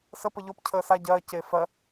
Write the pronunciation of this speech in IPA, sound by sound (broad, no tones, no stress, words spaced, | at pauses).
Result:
sə pəʎop cʰəːsa ɟɜː ceːfɜ